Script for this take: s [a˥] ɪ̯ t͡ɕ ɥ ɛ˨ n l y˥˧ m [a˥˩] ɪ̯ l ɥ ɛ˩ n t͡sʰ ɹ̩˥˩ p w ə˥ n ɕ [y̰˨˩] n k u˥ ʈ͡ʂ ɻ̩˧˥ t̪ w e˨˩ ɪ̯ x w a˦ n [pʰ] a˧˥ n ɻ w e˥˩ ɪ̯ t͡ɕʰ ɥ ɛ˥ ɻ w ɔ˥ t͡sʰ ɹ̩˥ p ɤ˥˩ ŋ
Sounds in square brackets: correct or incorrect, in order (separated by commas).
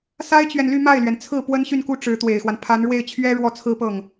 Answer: correct, correct, incorrect, correct